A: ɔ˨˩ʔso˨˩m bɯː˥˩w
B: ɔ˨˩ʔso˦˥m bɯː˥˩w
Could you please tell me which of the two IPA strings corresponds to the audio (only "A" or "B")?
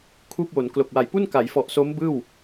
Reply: B